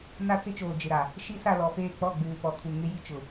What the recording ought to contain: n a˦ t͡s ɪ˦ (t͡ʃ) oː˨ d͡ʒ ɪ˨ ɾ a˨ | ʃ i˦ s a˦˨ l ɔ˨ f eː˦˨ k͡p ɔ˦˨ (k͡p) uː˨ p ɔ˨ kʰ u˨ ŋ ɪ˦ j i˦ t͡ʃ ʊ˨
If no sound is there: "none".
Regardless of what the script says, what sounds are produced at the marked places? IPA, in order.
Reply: t͡ʃ, ɡ͡b

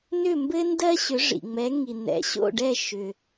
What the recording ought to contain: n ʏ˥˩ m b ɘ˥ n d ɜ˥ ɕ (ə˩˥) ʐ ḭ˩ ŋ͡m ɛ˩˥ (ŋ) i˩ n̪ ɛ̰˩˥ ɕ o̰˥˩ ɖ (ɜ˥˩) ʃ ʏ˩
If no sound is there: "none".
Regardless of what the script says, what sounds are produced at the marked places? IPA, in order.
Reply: ʏ˩˥, ŋ, ɛ˥˩

